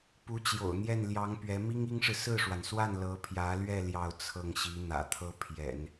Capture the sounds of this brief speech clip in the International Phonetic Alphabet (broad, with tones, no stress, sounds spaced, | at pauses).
p u˧˥ t͡ɕ j o̰˨˩ ʊ̯ n̪ j ɛ˥˩ n l j ɑ˧˥ ŋ p ɥ ɛ˧˥ m i˥ ŋ i˥ ŋ ʂ ɻ̩˨ s ɹ̩˥˩ ʂ w a˩ n s w a˥˩ n l ɤ˧˥ pʰ j ä˧˥ l ɥ ɛ˥˧ l j ɑ˥˧ ʊ̯ t͡sʰ ɤ˥˩ ŋ ɕ i˧˥ n̪ ä̰˨˩ t̪ʰ ɤ˥ pʰ j ɛ̰˨˩˦ n